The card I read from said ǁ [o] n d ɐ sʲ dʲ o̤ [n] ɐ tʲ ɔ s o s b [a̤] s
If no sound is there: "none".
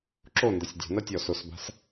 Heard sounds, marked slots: o, n, a̤

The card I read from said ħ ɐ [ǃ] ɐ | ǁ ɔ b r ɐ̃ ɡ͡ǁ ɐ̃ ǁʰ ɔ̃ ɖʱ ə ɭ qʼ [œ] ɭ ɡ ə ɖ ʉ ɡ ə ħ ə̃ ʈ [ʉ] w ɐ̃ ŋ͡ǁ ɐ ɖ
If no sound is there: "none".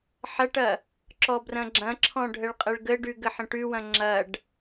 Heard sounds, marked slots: ʈ, ə, ʉ

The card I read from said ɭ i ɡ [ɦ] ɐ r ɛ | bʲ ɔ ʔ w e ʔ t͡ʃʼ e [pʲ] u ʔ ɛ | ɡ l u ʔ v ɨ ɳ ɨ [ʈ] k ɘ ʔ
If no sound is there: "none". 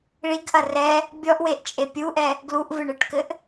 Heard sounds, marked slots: ʔ, pʲ, ʈ

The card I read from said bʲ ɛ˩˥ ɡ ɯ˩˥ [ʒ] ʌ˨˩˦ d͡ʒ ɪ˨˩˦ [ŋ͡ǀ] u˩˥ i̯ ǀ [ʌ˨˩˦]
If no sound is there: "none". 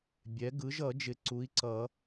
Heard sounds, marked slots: ʒ, ǀ, ʌ˨˩˦

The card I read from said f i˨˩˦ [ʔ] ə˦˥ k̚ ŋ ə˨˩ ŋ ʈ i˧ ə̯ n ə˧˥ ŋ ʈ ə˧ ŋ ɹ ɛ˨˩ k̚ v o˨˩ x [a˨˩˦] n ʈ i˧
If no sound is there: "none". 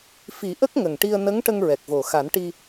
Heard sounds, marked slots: ʔ, a˨˩˦

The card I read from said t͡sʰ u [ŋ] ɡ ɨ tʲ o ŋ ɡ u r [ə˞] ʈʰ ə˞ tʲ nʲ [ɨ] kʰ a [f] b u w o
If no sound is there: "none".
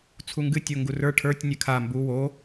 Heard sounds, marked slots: ŋ, ə˞, ɨ, m

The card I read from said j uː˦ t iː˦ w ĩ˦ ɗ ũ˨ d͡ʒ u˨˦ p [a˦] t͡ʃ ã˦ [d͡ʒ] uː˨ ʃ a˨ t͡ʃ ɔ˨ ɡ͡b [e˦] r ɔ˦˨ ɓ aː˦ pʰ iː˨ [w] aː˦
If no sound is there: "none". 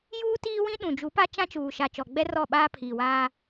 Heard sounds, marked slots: a˦, t͡ʃ, ɛ˦, w

